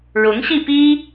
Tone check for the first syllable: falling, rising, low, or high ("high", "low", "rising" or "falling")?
rising